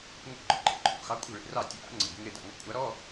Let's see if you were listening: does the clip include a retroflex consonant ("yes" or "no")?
yes